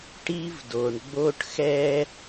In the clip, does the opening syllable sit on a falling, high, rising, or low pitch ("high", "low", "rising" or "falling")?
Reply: high